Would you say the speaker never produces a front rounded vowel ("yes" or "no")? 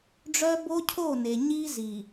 no